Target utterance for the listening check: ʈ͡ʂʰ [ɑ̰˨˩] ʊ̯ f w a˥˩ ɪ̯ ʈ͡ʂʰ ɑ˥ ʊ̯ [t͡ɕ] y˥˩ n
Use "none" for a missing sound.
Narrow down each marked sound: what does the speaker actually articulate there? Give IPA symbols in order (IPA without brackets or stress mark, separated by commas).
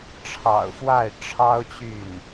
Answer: ɑ̰˨˩, t͡ɕ